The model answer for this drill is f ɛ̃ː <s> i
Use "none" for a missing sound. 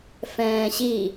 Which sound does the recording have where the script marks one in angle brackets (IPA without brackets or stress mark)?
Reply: ɕ